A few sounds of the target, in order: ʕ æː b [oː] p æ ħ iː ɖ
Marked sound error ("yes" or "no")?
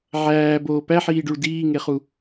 no